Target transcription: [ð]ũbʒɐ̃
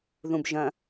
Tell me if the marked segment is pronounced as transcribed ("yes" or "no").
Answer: yes